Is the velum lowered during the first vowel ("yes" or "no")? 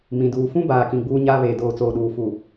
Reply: yes